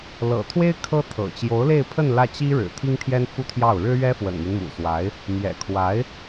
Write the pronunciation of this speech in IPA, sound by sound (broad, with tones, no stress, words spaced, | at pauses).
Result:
lɤ̰˨˩t̪ʰwe˥ɪ̯ kʰɤ˥t̪ʰɤ̰˨˩ t͡ɕjo˧˥ʊ̯le˥˧ɪ̯pʰə˥˧n lä˥˩t͡ɕi˥ɻɻ̩˨˩ t̪ʰi˥ŋt̪ʰjɛ˥nfu˥t̪ʰjɑ˥˩ʊ̯ ɻɻ̩˥ɥɛ˥fwə̰˨˩nmi˦n mṵ˨˩swa˧˥ɪ̯ | mjɛ̰˨˩kʰwa˧˥ɪ̯